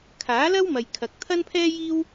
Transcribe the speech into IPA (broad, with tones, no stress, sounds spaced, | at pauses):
kʰ aː˨˥ l ɐ˥ w m ɐ˨ j kʰ ɐ˨ k̚ t̪ʰ ɐ˥ n pʰ ɛː˥ j iː˥ w